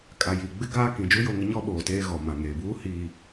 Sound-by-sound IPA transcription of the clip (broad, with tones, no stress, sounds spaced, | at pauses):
kʼ a˨ j i˨ ɡ͡b ɪ˦ ɡ aː˦ k ĩ˨ d͡ʒ u˦ j o˦˨ ŋ ɪ˦ ɲ ɔ˦ ɓ oː˨ t eː˦ ɣ ɔ˨ m ã˨ ŋ eː˨ b uː˦ h iː˨